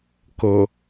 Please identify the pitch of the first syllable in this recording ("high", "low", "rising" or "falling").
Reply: low